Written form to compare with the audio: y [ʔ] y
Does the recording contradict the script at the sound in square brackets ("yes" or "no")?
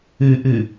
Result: no